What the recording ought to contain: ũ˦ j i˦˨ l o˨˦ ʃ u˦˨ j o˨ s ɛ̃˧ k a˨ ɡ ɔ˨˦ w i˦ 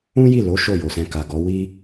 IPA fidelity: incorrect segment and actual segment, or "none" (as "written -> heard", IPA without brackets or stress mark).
u˦˨ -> o˦˨